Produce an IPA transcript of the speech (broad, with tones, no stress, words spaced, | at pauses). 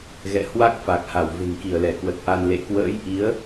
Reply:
ɣɛ̰˧˨hwa˦˥k̚fa˨˩k̚ ha˧˩wve̤˨˩ŋ ki˧˩ə̯lɛ˧˩kwə˨˩t̚ ʔa˧n lḛ˧˨ kwə̰ː˧˥jʔi˨˦ə̯